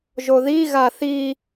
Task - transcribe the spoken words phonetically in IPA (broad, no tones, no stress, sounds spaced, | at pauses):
ʒ o ð i ɣ a θ i